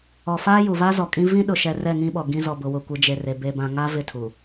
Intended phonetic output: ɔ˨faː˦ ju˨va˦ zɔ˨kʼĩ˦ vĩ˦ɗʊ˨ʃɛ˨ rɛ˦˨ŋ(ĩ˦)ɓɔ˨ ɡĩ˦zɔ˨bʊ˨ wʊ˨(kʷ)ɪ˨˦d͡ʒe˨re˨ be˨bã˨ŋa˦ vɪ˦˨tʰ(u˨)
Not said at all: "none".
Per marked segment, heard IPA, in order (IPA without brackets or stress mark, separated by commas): ĩ˦, kʷ, uː˨